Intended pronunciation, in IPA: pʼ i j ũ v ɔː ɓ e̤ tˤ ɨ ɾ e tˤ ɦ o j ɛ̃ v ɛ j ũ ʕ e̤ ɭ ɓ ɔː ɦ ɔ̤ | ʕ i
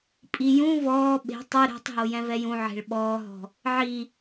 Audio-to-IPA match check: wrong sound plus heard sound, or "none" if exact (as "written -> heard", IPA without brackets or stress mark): e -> e̤